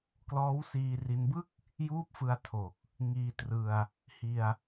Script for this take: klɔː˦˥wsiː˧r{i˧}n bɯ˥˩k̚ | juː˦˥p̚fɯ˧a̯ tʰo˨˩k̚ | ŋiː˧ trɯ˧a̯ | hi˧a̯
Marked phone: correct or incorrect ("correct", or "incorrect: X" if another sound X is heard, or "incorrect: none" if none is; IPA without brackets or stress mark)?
correct